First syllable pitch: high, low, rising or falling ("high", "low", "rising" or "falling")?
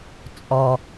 low